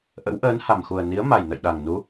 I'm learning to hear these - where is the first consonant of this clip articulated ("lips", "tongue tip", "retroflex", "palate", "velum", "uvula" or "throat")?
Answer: throat